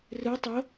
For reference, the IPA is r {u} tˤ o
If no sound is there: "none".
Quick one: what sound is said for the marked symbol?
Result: ɯ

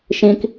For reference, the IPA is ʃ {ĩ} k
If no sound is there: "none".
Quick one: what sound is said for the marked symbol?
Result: ĩ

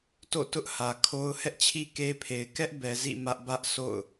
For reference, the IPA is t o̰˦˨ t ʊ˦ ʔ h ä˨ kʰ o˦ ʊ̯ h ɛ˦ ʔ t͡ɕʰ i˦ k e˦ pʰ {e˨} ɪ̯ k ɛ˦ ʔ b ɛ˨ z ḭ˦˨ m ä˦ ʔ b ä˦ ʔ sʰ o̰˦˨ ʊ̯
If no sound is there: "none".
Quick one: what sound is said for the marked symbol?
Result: e˨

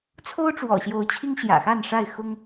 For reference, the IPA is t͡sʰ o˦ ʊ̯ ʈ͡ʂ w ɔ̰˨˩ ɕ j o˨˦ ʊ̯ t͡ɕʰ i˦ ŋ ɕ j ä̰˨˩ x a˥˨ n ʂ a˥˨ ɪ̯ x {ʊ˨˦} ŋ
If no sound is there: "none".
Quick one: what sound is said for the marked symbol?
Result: ʊ˦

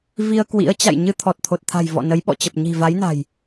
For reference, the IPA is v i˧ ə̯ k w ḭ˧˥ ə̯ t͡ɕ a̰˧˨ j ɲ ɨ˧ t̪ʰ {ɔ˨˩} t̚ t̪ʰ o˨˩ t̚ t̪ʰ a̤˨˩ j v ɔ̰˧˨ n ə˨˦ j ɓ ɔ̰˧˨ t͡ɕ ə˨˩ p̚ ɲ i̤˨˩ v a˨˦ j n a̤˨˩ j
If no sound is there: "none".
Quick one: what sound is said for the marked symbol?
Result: ɔ˨˩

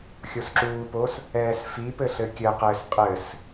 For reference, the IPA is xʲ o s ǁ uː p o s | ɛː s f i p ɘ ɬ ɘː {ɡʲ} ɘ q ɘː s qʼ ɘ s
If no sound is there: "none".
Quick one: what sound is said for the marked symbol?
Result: kʲ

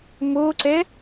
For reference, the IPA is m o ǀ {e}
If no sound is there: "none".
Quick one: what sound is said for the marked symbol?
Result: ɛ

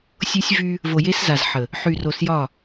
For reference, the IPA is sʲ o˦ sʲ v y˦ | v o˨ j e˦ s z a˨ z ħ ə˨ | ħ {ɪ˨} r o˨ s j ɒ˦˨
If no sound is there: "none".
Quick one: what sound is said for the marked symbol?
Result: y˨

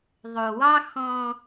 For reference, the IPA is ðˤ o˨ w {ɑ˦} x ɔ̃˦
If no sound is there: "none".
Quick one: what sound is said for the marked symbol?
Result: ɑ˦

